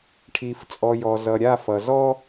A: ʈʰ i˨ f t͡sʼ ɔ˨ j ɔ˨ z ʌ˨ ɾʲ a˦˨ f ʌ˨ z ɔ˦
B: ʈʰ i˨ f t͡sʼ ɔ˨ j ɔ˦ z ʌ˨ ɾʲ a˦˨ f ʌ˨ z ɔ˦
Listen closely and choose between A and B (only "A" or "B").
A